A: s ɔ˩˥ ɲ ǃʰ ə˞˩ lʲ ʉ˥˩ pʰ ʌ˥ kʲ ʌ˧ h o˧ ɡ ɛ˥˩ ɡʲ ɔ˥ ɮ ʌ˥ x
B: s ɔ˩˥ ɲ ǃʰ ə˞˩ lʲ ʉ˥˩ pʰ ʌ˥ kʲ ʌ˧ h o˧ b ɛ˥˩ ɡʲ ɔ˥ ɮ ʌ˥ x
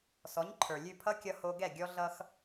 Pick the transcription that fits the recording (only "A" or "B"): A